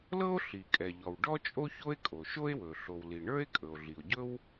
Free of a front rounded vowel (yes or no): yes